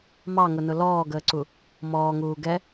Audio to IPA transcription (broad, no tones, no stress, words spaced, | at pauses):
mɑŋʊnʊ lɔːɡəːǀu | mɔːŋuː ɡɛ